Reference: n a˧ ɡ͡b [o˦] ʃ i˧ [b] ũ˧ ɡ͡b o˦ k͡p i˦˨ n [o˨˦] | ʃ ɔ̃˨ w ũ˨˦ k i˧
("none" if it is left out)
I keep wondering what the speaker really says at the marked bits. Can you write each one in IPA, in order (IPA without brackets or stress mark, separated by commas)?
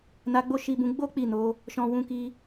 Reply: o˦, b, o˨˦